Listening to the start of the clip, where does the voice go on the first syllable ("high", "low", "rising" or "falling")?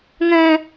high